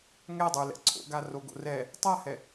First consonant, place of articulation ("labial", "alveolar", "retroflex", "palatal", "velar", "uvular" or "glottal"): velar